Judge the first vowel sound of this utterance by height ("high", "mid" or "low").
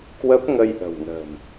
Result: mid